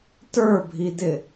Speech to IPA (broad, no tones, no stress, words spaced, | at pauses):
tə˞bʱidɪ